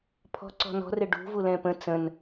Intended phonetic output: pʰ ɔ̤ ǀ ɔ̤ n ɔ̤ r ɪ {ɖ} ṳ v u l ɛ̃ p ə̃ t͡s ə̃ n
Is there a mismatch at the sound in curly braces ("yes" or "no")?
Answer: no